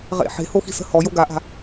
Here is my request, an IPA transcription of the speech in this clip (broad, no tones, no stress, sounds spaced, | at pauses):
ʁ ḛ ħ e̤ h o x i̤ s ə̤ h ɔ j o ɡ a ʔ a̤